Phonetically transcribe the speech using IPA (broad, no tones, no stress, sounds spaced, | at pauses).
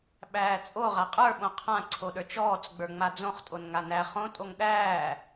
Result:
ɓ æː t͡sʼ o ʁ a qʼ ə˞ ɓ õ qʰ ã ǀʰ o ɗ ə˞ t͡ʃ ɔː t͡s ɡ͡b ə˞ ŋ͡m a d͡z õ χ tʼ o n ŋ a n æ χ õ tʼ o ŋ ɗ æː